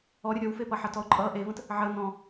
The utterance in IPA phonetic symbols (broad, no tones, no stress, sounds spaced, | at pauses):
ɔ ɾʲ ʌ ɾʲ ɔ w f e p ʌ ħ ʌ t ɔ ʊ̯ ǃʼ ʌ ʔ e v ə̃ t | ʕ ə n ɔ̃